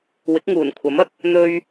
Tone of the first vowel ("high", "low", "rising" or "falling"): rising